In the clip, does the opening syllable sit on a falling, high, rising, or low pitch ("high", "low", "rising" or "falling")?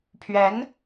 rising